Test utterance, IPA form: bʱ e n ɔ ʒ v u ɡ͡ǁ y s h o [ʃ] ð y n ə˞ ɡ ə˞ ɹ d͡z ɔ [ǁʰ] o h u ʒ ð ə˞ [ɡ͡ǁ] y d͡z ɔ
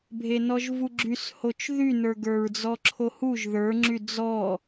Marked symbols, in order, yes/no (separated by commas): no, yes, no